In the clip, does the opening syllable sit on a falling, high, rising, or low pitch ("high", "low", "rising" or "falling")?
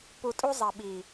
low